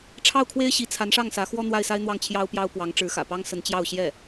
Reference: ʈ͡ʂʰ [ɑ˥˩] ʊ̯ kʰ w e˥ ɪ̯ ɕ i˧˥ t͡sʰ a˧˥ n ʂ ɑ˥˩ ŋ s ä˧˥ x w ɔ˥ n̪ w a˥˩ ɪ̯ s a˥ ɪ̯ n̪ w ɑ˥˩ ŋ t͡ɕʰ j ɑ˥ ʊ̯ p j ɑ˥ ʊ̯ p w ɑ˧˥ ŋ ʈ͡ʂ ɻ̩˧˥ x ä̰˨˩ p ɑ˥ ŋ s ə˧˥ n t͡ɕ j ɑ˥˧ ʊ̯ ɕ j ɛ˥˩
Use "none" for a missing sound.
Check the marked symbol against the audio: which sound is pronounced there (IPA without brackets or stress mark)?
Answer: ɑ˥˩